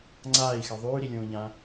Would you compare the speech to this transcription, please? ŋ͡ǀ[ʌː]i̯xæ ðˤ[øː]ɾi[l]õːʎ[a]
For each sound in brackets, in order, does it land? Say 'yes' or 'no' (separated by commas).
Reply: no, no, no, no